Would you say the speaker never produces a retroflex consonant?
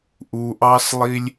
yes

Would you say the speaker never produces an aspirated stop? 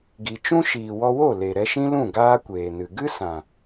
yes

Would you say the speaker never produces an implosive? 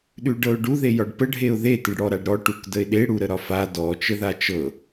no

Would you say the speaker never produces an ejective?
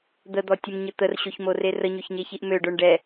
yes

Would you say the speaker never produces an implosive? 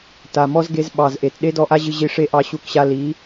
no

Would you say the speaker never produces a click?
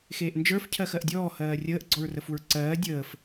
no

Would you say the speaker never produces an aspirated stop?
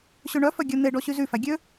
yes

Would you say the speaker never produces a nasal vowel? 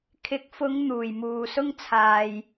yes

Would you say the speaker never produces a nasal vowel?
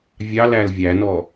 yes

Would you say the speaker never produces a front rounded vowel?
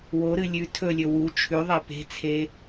yes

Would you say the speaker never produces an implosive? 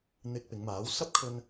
yes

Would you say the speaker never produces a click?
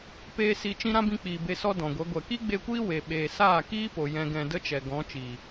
yes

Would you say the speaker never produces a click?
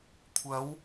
yes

